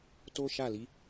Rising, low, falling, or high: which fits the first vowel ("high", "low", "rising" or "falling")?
high